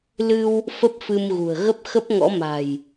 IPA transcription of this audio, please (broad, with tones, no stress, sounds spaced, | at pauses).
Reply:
l ɨ˧ w | f ə˦˥ p̚ f ɨ˧ m ɣ ṳ˨˩ ə̯ ɣ ə˦˥ p̚ x ə˦˥ p̚ ŋ ɔ̰˧˥ m a̤˨˩ j